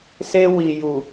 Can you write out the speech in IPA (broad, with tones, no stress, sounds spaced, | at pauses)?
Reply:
s e˧ w i˨ j u˨